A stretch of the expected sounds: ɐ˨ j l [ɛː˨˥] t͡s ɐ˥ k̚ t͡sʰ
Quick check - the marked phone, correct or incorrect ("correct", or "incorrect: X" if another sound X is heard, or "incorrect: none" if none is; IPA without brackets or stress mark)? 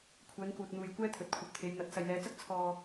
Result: incorrect: ɛː˨˧